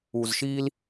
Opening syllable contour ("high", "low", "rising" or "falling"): low